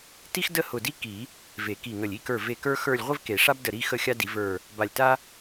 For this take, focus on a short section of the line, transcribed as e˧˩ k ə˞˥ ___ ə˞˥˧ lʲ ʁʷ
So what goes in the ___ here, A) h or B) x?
B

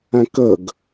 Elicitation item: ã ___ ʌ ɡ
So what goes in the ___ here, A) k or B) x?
A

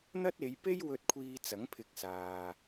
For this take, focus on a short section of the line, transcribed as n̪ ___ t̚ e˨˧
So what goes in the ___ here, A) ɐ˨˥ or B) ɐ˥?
B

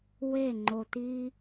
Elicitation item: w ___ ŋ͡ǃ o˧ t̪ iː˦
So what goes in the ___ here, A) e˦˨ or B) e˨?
A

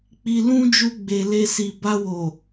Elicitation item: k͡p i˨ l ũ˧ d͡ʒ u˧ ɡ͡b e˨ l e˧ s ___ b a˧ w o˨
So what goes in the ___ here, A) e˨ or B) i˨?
B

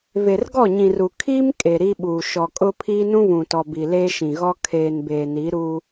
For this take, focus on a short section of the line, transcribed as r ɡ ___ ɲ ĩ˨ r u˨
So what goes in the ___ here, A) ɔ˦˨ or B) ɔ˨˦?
A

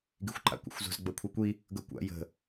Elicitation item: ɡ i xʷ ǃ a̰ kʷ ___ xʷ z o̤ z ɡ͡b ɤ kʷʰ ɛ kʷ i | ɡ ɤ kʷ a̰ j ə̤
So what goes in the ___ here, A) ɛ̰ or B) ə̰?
B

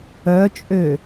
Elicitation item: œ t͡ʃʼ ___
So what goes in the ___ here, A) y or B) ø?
B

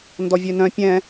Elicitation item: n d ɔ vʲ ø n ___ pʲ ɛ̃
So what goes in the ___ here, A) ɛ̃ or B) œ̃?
B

